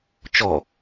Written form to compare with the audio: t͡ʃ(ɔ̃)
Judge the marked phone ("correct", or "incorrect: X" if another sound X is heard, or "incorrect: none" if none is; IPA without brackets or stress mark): incorrect: ɔ